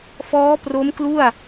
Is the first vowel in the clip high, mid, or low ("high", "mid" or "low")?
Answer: mid